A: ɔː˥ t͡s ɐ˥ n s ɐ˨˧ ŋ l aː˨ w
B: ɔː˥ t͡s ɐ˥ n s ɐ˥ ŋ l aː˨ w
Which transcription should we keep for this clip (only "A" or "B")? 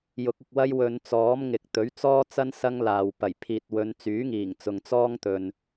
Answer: B